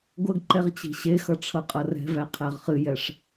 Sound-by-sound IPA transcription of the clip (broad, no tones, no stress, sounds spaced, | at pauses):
ɡʷ ə ɡ ǃ ɛ ʁ t͡ɕ i̤ ɕ e x ʌ ʈ͡ʂʰ ʌ qʼ ʌ r ɛ̤ v æ qʰ æ ʁ χ ɨ j ɛ ʂ